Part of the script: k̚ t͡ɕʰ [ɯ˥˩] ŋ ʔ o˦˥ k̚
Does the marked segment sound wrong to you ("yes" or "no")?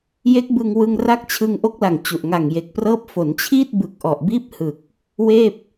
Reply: yes